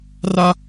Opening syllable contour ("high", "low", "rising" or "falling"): high